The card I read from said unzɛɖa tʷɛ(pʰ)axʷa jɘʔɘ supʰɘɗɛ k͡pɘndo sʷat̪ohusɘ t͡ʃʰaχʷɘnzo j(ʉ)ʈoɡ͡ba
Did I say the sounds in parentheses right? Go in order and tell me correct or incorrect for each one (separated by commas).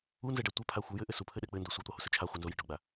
correct, incorrect